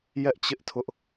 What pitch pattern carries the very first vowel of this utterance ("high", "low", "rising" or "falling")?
high